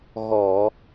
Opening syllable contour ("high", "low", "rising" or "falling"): low